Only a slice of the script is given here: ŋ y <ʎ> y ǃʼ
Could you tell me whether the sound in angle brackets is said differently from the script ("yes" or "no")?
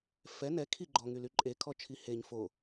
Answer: yes